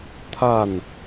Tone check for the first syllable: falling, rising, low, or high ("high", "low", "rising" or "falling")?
falling